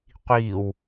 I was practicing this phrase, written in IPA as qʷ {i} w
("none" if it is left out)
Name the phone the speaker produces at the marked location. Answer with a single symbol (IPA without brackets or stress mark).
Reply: iː